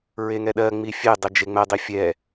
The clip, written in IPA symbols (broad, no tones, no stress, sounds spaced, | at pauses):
ɹ e ŋ ɛ ɗ ɜ ŋ͡m i fʲ e dˤ e d͡ʒ e ŋ͡m ɛ dˤ i fʲ ɛ